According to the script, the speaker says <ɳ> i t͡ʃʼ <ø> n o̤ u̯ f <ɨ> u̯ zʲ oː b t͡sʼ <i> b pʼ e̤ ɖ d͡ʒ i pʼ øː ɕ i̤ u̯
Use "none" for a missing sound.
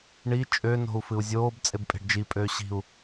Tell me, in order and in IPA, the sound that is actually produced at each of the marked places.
ɳ, ø, ɨ, e

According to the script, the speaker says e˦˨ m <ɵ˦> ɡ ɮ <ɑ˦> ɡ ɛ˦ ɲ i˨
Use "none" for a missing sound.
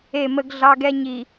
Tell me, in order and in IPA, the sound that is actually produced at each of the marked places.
ə˦, ɑ˦

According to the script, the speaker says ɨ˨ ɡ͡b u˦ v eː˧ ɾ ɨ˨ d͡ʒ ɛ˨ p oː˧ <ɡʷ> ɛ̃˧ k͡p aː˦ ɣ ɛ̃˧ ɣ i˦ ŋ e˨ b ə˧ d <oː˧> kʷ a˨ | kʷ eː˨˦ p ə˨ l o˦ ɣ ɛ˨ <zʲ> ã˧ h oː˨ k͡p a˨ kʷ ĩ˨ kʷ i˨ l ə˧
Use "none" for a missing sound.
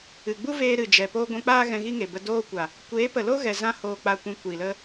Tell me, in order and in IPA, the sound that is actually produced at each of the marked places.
ɡʷ, oː˧, z

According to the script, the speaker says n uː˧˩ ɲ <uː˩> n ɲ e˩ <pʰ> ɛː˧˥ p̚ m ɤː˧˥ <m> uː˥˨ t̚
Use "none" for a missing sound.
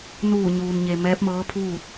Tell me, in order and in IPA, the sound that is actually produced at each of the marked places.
uː˩, m, pʰ

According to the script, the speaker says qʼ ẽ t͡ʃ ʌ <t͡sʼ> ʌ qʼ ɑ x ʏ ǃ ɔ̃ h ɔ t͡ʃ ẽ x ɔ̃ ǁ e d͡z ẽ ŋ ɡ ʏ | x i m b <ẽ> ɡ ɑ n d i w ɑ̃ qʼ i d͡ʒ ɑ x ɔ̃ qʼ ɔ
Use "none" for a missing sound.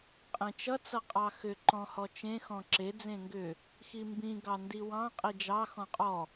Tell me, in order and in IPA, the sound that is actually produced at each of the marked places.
t͡s, ĩ

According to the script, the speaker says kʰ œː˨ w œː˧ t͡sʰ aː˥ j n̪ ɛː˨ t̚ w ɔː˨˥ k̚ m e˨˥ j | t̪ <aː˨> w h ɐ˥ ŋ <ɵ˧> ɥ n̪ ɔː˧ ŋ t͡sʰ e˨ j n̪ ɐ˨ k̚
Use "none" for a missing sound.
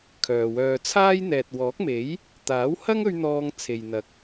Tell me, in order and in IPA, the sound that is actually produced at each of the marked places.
aː˨˥, ɵ˧

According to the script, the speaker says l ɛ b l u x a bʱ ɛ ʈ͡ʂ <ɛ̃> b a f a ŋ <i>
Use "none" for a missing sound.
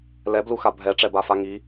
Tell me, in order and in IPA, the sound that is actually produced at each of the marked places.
ɛ, i

